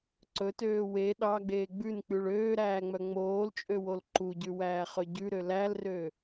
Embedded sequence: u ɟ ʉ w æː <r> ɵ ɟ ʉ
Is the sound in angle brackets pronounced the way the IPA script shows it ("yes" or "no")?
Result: no